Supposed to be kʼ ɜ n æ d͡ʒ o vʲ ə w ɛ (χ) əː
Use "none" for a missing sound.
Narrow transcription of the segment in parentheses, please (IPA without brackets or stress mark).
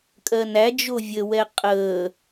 qʼ